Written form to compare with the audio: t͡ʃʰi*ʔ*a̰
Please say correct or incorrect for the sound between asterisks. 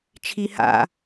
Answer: incorrect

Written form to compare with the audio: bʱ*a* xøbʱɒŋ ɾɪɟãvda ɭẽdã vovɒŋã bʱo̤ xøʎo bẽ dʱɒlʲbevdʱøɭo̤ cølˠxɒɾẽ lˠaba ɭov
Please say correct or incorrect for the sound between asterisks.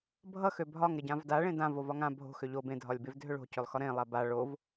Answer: incorrect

